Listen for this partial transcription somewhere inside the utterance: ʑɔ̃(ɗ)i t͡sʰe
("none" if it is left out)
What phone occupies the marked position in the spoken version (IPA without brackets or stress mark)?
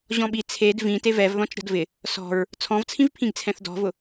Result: ɓ